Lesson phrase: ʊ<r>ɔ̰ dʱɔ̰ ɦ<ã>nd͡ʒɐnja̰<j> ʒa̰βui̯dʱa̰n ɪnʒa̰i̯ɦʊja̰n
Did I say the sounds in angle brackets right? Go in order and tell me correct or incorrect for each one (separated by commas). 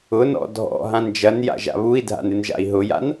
incorrect, correct, incorrect